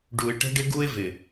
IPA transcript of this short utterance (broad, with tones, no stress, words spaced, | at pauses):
ɖu˨ɪ̯ʈə̤˦ɖɪ˦ɡu˦ɪ̯ vɪ˨